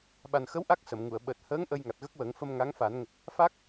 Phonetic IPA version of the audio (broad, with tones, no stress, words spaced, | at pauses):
ɓa˨˩nxə˧˥w ʔa˦˥k̚ sə˨˩˨mŋu˨˩˨ə̯ ɓəː˨˩t̚həː˧˥ŋ ʔə˧jŋa˨˩t̚ɣə˦˥k̚wəː˨˩˦ŋ fə˧m ŋa˧˥ŋ fa˨˩˦n ŋə˨˩k̚ | fa˦˥k̚